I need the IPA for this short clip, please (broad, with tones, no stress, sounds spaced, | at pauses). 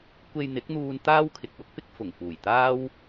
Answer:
kʷ e˧ j n̪ ɪ˨˥ k̚ n̪ uː˧ n t̪ aː˥ w kʰ ɪ˨ k̚ w ʊ˥ k̚ p ɪ˥ k̚ f ʊ˨˩ ŋ f uː˨˩ j t̪ aː˥ w